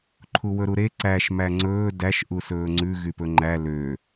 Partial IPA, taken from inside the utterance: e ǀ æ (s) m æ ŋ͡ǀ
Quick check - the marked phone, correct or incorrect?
incorrect